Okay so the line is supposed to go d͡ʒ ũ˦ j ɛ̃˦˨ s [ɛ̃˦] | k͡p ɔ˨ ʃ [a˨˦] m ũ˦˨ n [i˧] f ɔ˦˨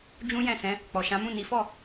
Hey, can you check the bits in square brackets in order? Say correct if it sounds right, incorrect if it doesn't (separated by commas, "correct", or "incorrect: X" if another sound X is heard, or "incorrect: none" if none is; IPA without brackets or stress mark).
incorrect: ɛ̃˨˦, incorrect: ã˨˦, incorrect: i˨˦